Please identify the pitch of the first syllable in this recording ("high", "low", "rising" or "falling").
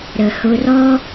low